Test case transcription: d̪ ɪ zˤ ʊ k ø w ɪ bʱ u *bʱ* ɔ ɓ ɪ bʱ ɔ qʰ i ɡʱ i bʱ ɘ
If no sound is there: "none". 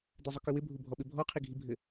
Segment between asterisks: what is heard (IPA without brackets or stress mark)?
bʱ